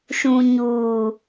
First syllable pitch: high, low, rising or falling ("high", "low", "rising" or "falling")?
low